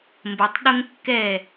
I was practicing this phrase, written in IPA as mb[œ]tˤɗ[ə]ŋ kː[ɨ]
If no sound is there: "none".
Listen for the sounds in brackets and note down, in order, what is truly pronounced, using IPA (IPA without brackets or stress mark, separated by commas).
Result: ə, ʊ, ɛ